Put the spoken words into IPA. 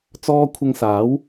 t͡s ɔː˥ kʷʰ ɐ˧ ŋ s aː˨˥ w

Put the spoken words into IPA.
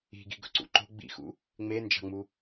i̤ ɡ i̤ ɡ ɵ ǀ ṵ ǃ o̤ ɡ͡b ḭ x ṵ | ŋ͡m e n d͡ʒ ɑ̤ ŋ͡m u

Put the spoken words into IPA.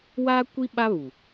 w aː˦ kʷ i˦ ɓ a˦ β u˨

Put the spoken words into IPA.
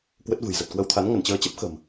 k w ə˦˥ t̚ v ɨ̤˨˩ j z ə˨˩ t̚ k w ə˧ w t̪ʰ a˨˦ n ŋ ə˧˩ n t͡ɕ əː˨˦ t͡ɕ ə˦˥ p̚ x ə̤˨˩ m

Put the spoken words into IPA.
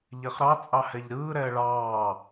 ʎ ɛ χ ɾ ɑ t͡sʼ ɑ h ɛ ʎ ɾ ɯː ɾ ɛː ɭ ɑː

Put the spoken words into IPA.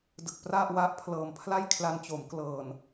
d ɯ˨˩ k̚ p r a˥˩ ʔ w a˦˥ ʔ pʰ l ɤː˨˩ m pʰ l a˥˩ j kʰ l a˧ n t͡ɕ o˩˦ m k l ɤː˨˩ n

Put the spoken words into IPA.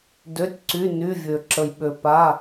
d ø˩˧˩ tʲ ǀ y˩˧˩ n y˩˧˩ vʲ ø˩ ǁ ə˩ j ɓ ø˩ p a˩˧˩

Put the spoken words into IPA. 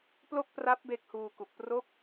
p l o˥˩ k̚ p r a˦˥ p̚ b e˥˩ k̚ h uː˧ k u˨˩ k̚ p r o˦˥ k̚

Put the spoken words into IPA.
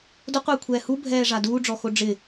d ʊ qʷ eː kʷʰ ɛː h u bʱ ɛː ʐ a d uː ɖ͡ʐ ɔ x o ɖ͡ʐ ɪ

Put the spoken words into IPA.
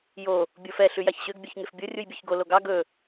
j o | bʲ o f ɛ ɬ ʉ j ɑ ç ɕ ø ɡ bʲ œ ç ŋ e f bʲ o rʲ u j bʲ ø ç ɡ o l o ɡ ɑ ɡ ɵ

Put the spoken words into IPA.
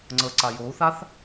ŋ͡ǀ ə ǀ a j o u̯ θ a θ

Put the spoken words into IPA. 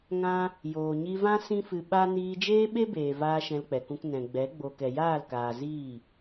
ŋ ã˦ | j oː˨ ɲ i˧ v ã˦ s ĩ˦ f ɨ˧ ɓ a˦ n iː˧ d͡ʒ eː˦ ɓ e˦ b eː˨ v aː˦ ʃ ɛ̃˧ l k͡p ɛ˨ k ũ˧ k n ɛ̃˨ ɡ͡b ɛ˨˦ ɡ͡b o˨ k ɛ˨ j aː˦˨ l k aː˨ z iː˦˨

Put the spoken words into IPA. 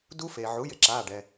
d u˦˥ f e˩ ʕ u˩˥ j ɪ˩˥ ǁ aː˩˧˩ ɖ ɛ˩

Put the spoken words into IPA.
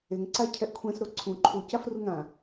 e ŋ ǀ a cʰ ɛ ʔ kʷʰ ɛ̃ s ɾ o ǀʰ ũ ǃʰ u c a f r u ŋ ã

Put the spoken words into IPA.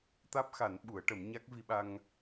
t̪ aː˦˥ p̚ x a˨˩˦ n ɓ u˨˩˦ ə̯ ʈ ə˨˩˦ m ɲ a˦˥ k̚ v i˧ ɓ a˧ ŋ

